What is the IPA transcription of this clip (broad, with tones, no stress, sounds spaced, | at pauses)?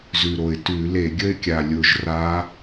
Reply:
z ʉ˨˩ ɾ o˨˩ ɪ̯ t ʉ˧˩˧ l e˧˩˧ ɡʲ ə˥˧ ɪ̯ kʲ a˨˩ lʲ ʊ˨˩ ʒ r a˨˦